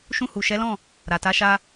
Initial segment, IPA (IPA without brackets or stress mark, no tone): ʃ